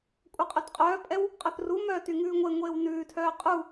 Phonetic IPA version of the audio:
kʷʼ œ qʼ œ t qʼ œː pʼ ɛ w | qʼ œ θ r u m œː t y ŋ ʉː ŋʷ e ŋʷ eː w n ʉː tʰ œː qʼ u

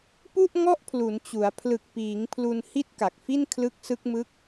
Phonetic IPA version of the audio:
p u˥˩ ʔ ŋ ɔ˥˩ ʔ pʰ l u˩˦ n t͡ɕ u˩˦ a̯ pʰ l ɯ˨˩ k̚ p iː˩˦ ŋ pʰ l u˧ n h i˥˩ t̚ k a˨˩ k̚ f i˥˩ n kʰ l ɯ˦˥ k̚ s ɯ˦˥ k̚ m ɯ˦˥ k̚

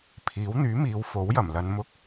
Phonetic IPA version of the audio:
pʰ iː˨˥ w n̪ yː˨˥ m iː˨˧ w f o˨˥ w j ɐ˨˩ m l ɐ˨˧ n m ʊ˧ k̚

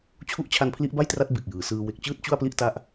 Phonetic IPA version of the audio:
t͡ɕʰ u˦˥ ʔ t͡ɕʰ a˦˥ n pʰ l i˦˥ ʔ b a˥˩ j t r a˦˥ t̚ b e˨˩ k̚ j ɯː˩˦ s ɯː˧ w e˨˩ k̚ t͡ɕ ɯː˥˩ t̚ t͡ɕ u˥˩ a̯ p l i˥˩ ʔ t a˦˥ ʔ

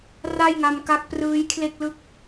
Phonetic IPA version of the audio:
r a˥˩ j ŋ a˧ m k a˦˥ k̚ p r ɯː˦˥ j kʰ l e˥˩ k̚ l ɯ˥˩ k̚

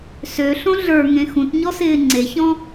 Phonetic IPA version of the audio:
s ø ɬ õ ɮ ə˞ ŋ ẽ x ũ t ɲ ɔ s ɪː ŋ͡ǀ e ç ɔ̃

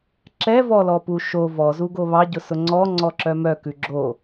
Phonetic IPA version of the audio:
ǁ ɛ v ɔ l ɔ p u ʃ o v ɔ z u ɡ o β ɑ ɟ ʊ s ʊ ŋ͡ǀ ɔ ŋ͡ǀ ɔ ǁ œ m œ k ʉ ɡ͡ǁ o

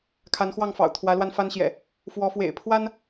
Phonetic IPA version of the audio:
kʰ a˨˦ n x w ɑ˥˨ ŋ f ɑ̰˨˩ ʊ̯ t̪ʰ w ä˨˦ l w a˧ n f a˦ n ɕ j ɛ̰˨˩ | f w ɔ˨˦ f w ḛ˨˩ ɪ̯ pʰ w a˦ n

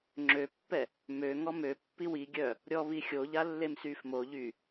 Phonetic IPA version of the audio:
ŋ͡ǁ ø pː ɛ | m ø ŋ ɔ m ø pː i w i ɡʲ œ | ɾʲ ɔ β i xʲ o ʎ a lː e m s y f m o ʎ y

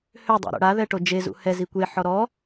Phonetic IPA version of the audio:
h ø dˤ o̰ ɾ o̰ ɽ a ð ɛ ʈ o d͡ʒ e z ṵ h ɛ z i kʷ e ħ ɔ ɾ ɔ

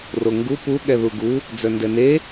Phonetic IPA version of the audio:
r o ŋ ɡ u p u ɠ ɛ ð u ɡ u | d͡z œ n d ɛ n e

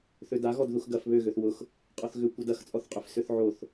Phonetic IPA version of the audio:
θ ø d a ɣ ɔ d ð u x ɡ ɐ f β ø ɣ ø θ w ʊ x | qʼ ɔ θ ɣ ʏ kʷ ɛ d ɐ x t͡sʼ ɔ θ qʼ ʏ f s ʏ θ ʕ o θ

